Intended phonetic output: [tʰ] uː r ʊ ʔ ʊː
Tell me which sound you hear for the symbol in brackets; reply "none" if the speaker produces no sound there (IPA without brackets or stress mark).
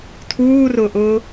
tʰ